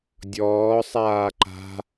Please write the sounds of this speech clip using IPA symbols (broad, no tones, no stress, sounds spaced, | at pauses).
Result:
dʲ ɔː sˤ aː ǃ a̤